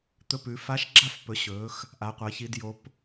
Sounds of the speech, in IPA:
t̪ ɵ˥˨ p ʉ˩˥ f a˧˥ ʃ ɡ͡ǁ a˥˨ f p ɵ˩˥ ɕ ɵː˩˥ x | ʔ a˩˥ qʷ ɐː˩˥ ç i˧˥ d j o˧˥ p

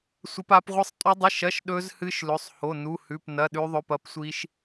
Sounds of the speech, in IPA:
sʷ ɐ˦˥ p a˦˥ p ʁʷ ɨ˦˥ sˤ tʼ u˦˥ dˤ i˧˥˧ ʃ ɐ˧˥˧ ʃ ɗ ɵ˦˥ z h ɨ˦˥ ʃ l ɵ˧˥˧ sˤ h o˧˥˧ n u˧˥˧ h ʉ˧˥˧ p n ɐ˧˥˧ ɗ ʉ˦˥ ðˤ ɵ˧˥˧ p ɐ˦˥ p sʷ i˦˥ ʃ

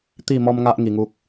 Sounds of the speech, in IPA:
t̪ i˥˧ m ɔ˦ m ŋ a˦ ʔ ŋ i˧ ŋ u˦ k̚

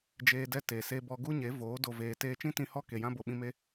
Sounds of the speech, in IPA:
d͡ʒ eː˧ d ɛ˦˨ t e˨ s e˧ b ɔ˧ ɡ u˦ ɲ e˨˦ v oː˨˦ d o˧ v eː˧ t eː˧ t͡ʃ ĩ˦ t ĩ˧ h ɔ˦ k e˨ j ã˦ b o˨ ɓ ĩ˧ m e˦

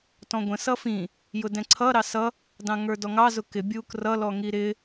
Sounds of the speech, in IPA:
t ɔ̃ ɡʷ ə̃ s ʌ f ĩ | j ʊ d ɛ̃ ǀʰ ʌ ɾ ɑ s ʌ | d ɑ̃ ŋ ə˞ d ɔ ŋ ɑ z ʊ k ɪ bʲ u k r ʌ l ɔ ŋ i ɾ ɪ

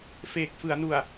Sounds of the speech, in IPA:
f eː˨˩ k̚ f ɯ˩˦ a̯ n u˨˩ a̯

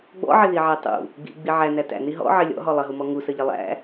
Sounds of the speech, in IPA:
ɡ͡b ɔ̰ ʕ ɪ ð i ʕ æ tˤ ṵ | ɡ͡b ḭ ɡ͡b i ʕ æ n æ t æ̰ n i ɦ ɔ̰ ʕ ɪ lʲ ɔ̰ ɦ ɔ lˠ ə ɦ u m ɔ ŋ u s ə ʎ ɪ lˠ æ̰

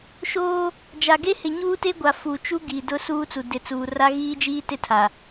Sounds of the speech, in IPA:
ʃ oː˦ | d͡ʒ a˨ ɡ e˦ h ɪ˨ ɲ uː˦ t e˦ ɡʷ a˨ f u˨ t͡ʃ u˦ ɡ iː˨ d ʊ˦ s uː˦ t͡s u˨ d ɪ˨ t͡s uː˨ r a˦ ɣ iː˦ d͡ʒ iː˦ t ɪ˦˨ tʰ a˨

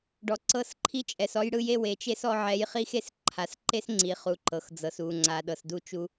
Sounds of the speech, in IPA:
ɖ ɔ˨ ǀ ɤ˦˨ s ǃʰ i˦ t͡ʃʼ ɛ˨ s ɔ˦ j ɽ ɯ˦ j e˦ w e˨ t͡ʃ e˦ s ɔ˦ ʕ ɛ˨˦ j χ i˦ x e˦ s ǃʰ a˨ s ǃ e˦ s ŋ͡ǀ i˨ χ u˨ ǃ ɤ˨ x d͡z ɤ˨ s u˨ ŋ͡ǀ a˨ ɗ ɤ˨ s d u˦ t͡ʃ u˦

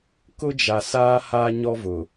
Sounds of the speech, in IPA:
k ʊ˦ d͡ʒ a˨ s aː˦ h aː˦ ɲ ɔ˦ v ʊ˨

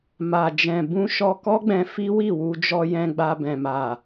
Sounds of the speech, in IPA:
m a˨ d͡ʒ ɛ̃˨ b ũ˧ ʃ ɔ˧ k ɔ˦ ɡ͡b ɛ̃˧ f i˦ w i˦˨ w u˧ d͡ʒ ɔ˧ j ɛ̃˧ ɡ͡b a˧ b ɛ̃˨ m a˨

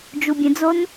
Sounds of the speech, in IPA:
d͡ʒ u bʲ ə̃ d͡z o n

